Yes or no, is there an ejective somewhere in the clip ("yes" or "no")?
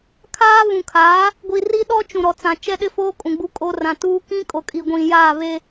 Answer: yes